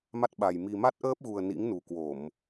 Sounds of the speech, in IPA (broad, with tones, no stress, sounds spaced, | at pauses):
m a˦˥ t̚ ɓ a˨˩ j m i˨˩ m a˦˥ t̚ ʔ əː˦˥ p̚ ɣ u˨˩ ə̯ n ḭ˧˥ ŋ n u˨˩ k w o˧˩˨ m